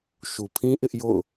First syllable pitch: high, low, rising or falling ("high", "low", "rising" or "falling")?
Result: low